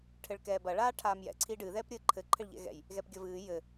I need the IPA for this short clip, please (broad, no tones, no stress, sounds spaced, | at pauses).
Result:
ʈʰ ɘ ɭ k ɛː b ɐ ɭ aː ʈʰ aː m j ɛ̰ ǀʰ i ɖ ɨ ð ɛː p ɾʲ ɘː ǃʰ ɘ ǃʰ ɘ ɭ ʎ ɛ̰ ɣ ɛ̰ j | ɣ ɛ p ɡʲ ɐ v ɨː j ɘ